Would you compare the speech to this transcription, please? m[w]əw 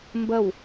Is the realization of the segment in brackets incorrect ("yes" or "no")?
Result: yes